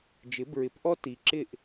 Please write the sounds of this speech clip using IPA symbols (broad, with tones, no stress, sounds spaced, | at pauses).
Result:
d͡ʒ ɪ˩˥ b ɹ ɪ˩˥ p ʔ ɔ˥ t i˩ ǁ ɪ˥˩ ʔ